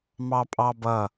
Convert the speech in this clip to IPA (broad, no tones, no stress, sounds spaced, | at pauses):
m ɑ pʼ ɑ b ʌ